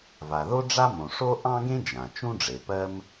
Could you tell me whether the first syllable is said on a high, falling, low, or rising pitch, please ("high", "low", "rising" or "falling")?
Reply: low